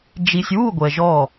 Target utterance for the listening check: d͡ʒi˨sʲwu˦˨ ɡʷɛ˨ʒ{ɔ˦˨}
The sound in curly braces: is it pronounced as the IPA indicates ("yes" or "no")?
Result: yes